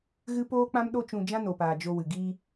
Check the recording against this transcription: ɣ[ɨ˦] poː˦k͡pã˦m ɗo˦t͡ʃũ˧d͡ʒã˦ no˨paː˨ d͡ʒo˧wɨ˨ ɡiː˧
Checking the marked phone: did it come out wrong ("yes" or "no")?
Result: no